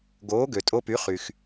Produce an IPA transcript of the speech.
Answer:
ɡ oː˩˥ ɡ ø˩ tʼ o˧ p y˩˥ χ y˩ x

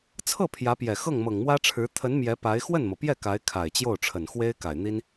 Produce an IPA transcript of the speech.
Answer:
t͡sʰ ɤ˥˩ pʰ j ä˧˥ p j ɛ˨˩ x ɤ˥˩ ŋ m ɤ˨˩ ŋ m w ä˥ ʈ͡ʂʰ ɻ̩˧˥ t̪ʰ ə˧˥ n m j ɛ˧˥ p a˧˥ ɪ̯ x w ə˥˩ n m ɤ˩ p j ɛ˥˩ k a˧˥ ɪ̯ kʰ a˨˩ ɪ̯ t͡ɕ j o˥˩ ʊ̯ ʈ͡ʂʰ ə˨˩ n x w e˥ ɪ̯ k a˨˩ ɪ̯ n̪ i˥ n

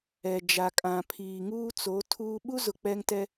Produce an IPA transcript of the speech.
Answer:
ɛ˨ d͡ʒ a˨ kʼ ã˨ pʰ iː˨ ŋ uː˦ t͡s o˨˦ tʰ uː˦ ɓ u˦ z ʊ˨ k͡p ɛ˦ ŋ t ɛ˦

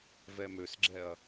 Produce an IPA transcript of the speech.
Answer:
v ɛ m ø s ɡ͡ǁ ɛ ɐ̯

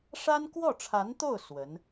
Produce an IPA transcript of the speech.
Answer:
ʂ a˥ n k w ɔ˥˩ ʈ͡ʂʰ a˧˥ n t̪ o˥˩ ʊ̯ s w ə˧˥ n

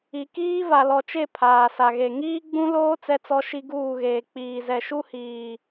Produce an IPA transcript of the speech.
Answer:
i˨ k iː˦ v a˨ l ɔ˨ t͡ʃ e˦˨ pʰ aː˨ s a˨ ɣ e˨ ŋ iː˦ ɡ͡b ũ˦ l oː˦ t͡s ɛ˦ t͡s ɔ˦ ʃ i˦ ɡ uː˦˨ ɣ eː˨ k͡p iː˨ z ɛ˨ ʃ u˦ h iː˨

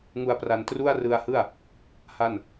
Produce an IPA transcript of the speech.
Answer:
ŋ u˧ a̯ p r a˧ n t r u˥˩ a̯ r ɯ˧ a̯ h ɯ˥˩ a̯ | h a˥˩ n

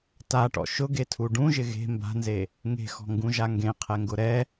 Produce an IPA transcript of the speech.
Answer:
t a ʈ ɔ̰ ʃ ʊ ɡ e tʰ u ɖ ũ ʒ ɪ ɣ e̤ m b a̤ n z e | ŋ e̤ x ɔ̤ ŋ ɡ ũ ʒ a ŋ ɡ ẽ qʰ ɛ ŋ ɡ ʊ ɾ ɛ

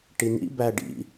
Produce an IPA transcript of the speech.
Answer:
ʈ i n ḭ b æ ɖ ḭ

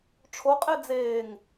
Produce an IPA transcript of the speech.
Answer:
ʈ͡ʂʰ o qʼ e d͡z eː ŋ

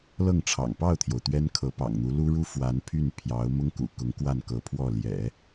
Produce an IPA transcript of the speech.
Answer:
l ɤ˥˩ ŋ ʈ͡ʂʰ ɑ̰˨˩ ŋ p ɑ˥˩ ʊ̯ t̪ʰ j o˩ ʊ̯ t̪ ɥ ɛ˥ n kʰ ɤ˧˥ p ɑ̰˨˩ ŋ n̪ u˧˥ l u˥ ɻ u˥ f w a˧˥ n pʰ y˥˩ n pʰ j ɑ˧˥ ʊ̯ m ʊ˥ ŋ k ṵ˨˩ k ʊ˧˥ ŋ k w a˥˩ n k ɤ˧˥ pʰ w ɔ˥˩ l j ɛ̰˨˩˦

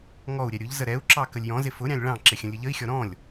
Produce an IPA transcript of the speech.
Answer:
ŋ ɔ u̯ ɾʲ ɛ ɾʲ ʊ ʎ z ə ɾ ɛ u̯ ǁ ɑ k ə lʲ j ɔ̃ z ɪ f ʊ ɾʲ ɑ̃ lʲ ɭ ɑ̃ ǁ ɪ xʲ ə̃ lʲ ə ʎ ə i̯ xʲ ɔ ɾ ɔ̃ lʲ

